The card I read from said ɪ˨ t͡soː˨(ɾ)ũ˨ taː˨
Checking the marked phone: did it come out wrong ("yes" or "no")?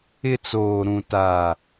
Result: no